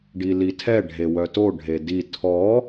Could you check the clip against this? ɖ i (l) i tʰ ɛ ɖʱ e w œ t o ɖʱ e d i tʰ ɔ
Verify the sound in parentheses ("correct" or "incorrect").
correct